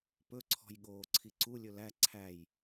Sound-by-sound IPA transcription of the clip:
p ɵ ǀʰ ɔ̤ j ɠ oː ǀʰ i ǀ u lʲ ɵ l æ ǀʰ æ j

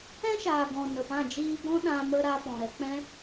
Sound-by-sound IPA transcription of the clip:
ɛ̃˦ ʃ aː˨ ɡ ɔ̃˨ n ə˨ p ã˦˨ d͡ʒ iː˦ ɡ ɔ̃˦ ɗ ã˧ m ə˧ ɾ a˧ p ɔ̃˨ ɾ ɛ˧ k͡p ɛ̃˦

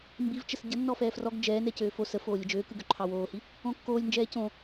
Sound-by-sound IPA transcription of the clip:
m b i v t͡ʃ ə s ɟ ə nː ɔ f ɛː f r ɔ ɡ d͡ʒ ɛː n ɛ c øː f o s ə f oː lʲ ə d͡ʒ øː k ɯ ɡ ø ǃʰ ɑ w oː h i | õ kː oː lʲ n d͡ʒ ɛː c õ

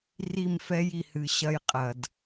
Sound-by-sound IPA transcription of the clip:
r i˦˨ m f ɛ˦ j i˨ h ɨ˨ ɕ ɐ˦ j qʼ ɐ˨ d

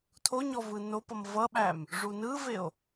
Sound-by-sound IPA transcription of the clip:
tʰ o ɲ ɔ v ɯ n o p ʌ m v ʌ ɓ æ m | ʐ u n ɯ v e o̯

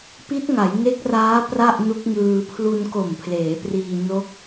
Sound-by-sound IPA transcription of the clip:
p i˦˥ t̚ ŋ a˩˦ j ŋ e˦˥ k̚ r aː˦˥ p r a˥˩ ʔ n u˦˥ k̚ ŋ ɯː˧ pʰ l u˧ n k o˨˩ m pʰ l eː˩˦ p r iː˧ n o˦˥ k̚

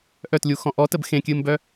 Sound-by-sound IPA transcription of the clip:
ʔ œ t lʲ u x ɔ̃ ʔ ɔ t ə b x ẽ kʲ ɨː m b œ

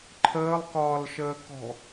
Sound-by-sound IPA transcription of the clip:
ǃʰ əː lˠ k ɒː l ʃ əː k ɔ̤

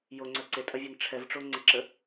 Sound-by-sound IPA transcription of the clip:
j o ŋ͡ǀ œ ǀ e tʼ ɐ vʲ ɛ n ʈ͡ʂʰ ɛ v ʈ͡ʂ o ŋ͡ǀ ɪ ǁ ə

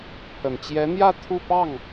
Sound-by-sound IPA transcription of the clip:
pʰ ə˨˩ n t͡ɕ j ɛ˧˥ n̪ j ä˥˧ t̪ʰ u˥˧ p ɑ˥˩ ŋ

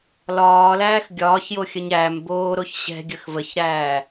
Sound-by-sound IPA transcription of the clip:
l ɒː l æː x ɡʲ ɒː ç j o xʲ ə ɲ æ m b oː ɾ o ç ɕ ɛ̤ ɡʲ ə x v ə ç ɾ æː

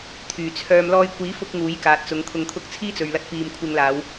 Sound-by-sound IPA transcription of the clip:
t̪ʰ yː˨˩ t͡sʰ œː˧ m l ɔː˧ j kʷ iː˨˥ f ʊ˧ k̚ ŋ uː˨˥ j k aː˨ t̚ t͡s ʊ˨˧ ŋ t̪ʰ ʊ˧ ŋ t̪ʰ ʊ˥ k̚ t͡sʰ iː˥ t͡s ɵ˨ ɥ l ɐ˧ t̚ p iː˨ m kʷʰ ɪ˧ ŋ l aː˨˧ w

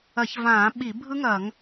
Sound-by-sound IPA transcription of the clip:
ɐ˧˩˧ ç v ãː˧˩˧ ɓ i˧˩˧ bʱ ɯ˦˥ ŋ ɐː˧˩˧ ŋ

